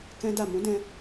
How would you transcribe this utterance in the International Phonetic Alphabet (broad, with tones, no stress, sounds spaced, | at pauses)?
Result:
k ɛ̃˦ d a˦˨ m ũ˨˦ d ɛ̃˧